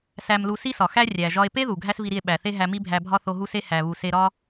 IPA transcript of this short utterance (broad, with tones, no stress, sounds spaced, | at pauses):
s æ˧ m l u˧ s i˥ s ɒ˩ x æ˥ rʲ æ˩ ʒ ɒ˧ e̯ p e˥ ð u˩ ɡʱ æ˥ s v i˧ ɾ i˧ e̯ ɓ æ˩ θ e˥ ɦ æ˧ m i˥ bʱ æ˧ bʱ ɒ˥ θ o˧ ɦ u˥ s e˥ h æ˩ β u˩ s e˧ ɾ ɒ˥